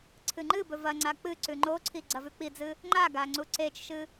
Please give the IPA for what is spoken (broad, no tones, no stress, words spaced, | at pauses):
ǀʰɨŋ͡ǃɨbɵ vɐŋ͡ǀa k͡pɨǀʉ ŋ͡ǃoǀʰi ɡ͡ǀɐvʉk͡pid͡zɨ | ŋ͡ǃaɡa ŋ͡ǀuǀet͡ʃʃɨ